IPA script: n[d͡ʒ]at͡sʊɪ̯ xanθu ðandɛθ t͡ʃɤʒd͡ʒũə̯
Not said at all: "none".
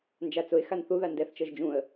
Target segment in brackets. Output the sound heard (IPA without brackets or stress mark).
d͡ʒ